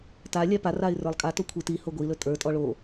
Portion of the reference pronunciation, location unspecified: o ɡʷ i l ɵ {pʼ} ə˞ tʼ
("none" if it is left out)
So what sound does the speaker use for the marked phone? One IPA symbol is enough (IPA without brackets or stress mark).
tʼ